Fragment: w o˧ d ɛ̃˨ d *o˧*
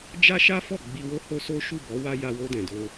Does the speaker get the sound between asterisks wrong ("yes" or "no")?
no